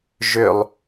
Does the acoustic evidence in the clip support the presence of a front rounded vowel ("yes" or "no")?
yes